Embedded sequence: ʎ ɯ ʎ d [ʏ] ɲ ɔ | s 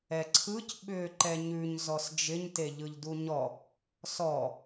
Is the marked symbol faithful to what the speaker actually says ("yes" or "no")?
no